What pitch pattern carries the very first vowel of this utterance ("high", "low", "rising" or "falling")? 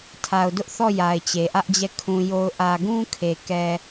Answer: low